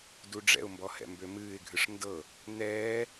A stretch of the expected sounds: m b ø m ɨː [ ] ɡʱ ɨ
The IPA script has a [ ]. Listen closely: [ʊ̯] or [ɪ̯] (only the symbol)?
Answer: ɪ̯